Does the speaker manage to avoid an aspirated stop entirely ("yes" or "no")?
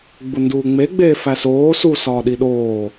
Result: yes